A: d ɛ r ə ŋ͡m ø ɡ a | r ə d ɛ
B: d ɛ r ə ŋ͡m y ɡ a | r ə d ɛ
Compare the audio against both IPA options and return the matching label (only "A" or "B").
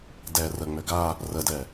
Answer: A